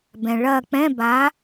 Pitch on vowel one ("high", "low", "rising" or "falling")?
low